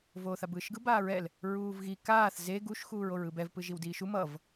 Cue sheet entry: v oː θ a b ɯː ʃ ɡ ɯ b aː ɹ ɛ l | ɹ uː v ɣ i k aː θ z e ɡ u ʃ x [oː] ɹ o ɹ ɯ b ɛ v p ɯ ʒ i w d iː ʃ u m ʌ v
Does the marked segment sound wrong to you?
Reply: yes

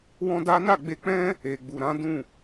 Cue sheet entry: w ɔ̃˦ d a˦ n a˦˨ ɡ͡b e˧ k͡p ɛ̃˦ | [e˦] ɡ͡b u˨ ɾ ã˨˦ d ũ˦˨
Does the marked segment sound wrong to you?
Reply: yes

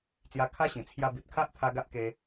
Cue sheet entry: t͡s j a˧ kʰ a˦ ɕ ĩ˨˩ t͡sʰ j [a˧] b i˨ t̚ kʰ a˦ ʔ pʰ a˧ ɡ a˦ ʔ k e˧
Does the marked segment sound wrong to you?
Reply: no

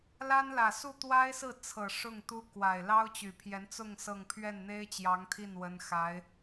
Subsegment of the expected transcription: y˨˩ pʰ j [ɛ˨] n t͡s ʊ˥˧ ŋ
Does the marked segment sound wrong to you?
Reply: yes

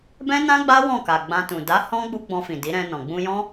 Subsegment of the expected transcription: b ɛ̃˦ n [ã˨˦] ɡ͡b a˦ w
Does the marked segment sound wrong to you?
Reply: yes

